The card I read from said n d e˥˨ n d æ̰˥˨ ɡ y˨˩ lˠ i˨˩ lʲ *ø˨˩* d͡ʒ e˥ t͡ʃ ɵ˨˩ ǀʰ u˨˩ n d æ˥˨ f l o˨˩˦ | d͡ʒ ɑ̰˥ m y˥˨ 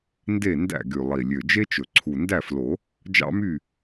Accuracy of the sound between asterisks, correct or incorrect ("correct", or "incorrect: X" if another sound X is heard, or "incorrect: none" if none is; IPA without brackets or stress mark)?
correct